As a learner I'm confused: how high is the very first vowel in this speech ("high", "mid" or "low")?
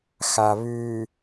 low